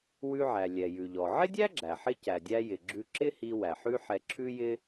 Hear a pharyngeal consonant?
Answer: yes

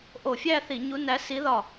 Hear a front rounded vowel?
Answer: no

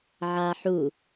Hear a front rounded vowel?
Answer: no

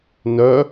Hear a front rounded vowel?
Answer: yes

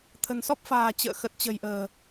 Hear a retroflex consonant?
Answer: no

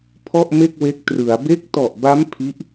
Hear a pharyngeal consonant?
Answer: no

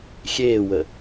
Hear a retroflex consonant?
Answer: no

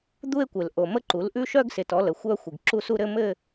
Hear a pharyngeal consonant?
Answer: no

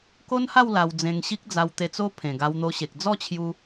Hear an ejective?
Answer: no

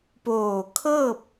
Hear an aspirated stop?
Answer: yes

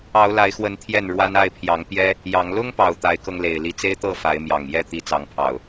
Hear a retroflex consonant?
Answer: yes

